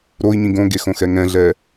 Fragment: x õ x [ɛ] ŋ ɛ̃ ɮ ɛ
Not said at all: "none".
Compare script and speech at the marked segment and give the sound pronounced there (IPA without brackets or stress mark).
ɛ